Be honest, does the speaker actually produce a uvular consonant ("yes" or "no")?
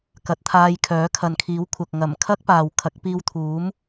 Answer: no